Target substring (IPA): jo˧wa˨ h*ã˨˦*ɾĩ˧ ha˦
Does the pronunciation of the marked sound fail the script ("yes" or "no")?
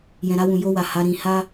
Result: yes